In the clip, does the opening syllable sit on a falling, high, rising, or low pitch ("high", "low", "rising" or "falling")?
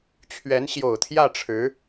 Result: rising